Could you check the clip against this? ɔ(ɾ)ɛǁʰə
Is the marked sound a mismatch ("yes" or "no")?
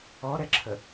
no